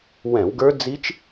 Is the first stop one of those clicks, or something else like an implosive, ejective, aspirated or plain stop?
plain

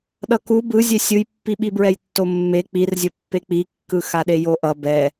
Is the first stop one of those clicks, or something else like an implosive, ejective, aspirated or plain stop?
implosive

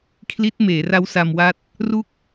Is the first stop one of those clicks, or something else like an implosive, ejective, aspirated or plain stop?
aspirated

